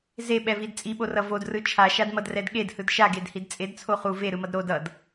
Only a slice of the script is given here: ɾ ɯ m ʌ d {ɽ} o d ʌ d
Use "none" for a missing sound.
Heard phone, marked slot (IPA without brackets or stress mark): ɾ